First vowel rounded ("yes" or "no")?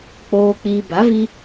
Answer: yes